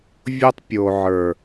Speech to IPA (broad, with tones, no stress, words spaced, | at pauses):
vʲo˦tˤpʲo˨ ʕə˞˨